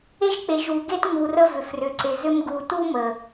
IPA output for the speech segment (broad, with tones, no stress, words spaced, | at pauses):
e˦ʒk͡pe˨ʒu˨ ɡe˦tŋu˨ rə˦vʏ˨ frʏ˨ǀe˨zʏ˦m ɡu˨tu˦ mə˨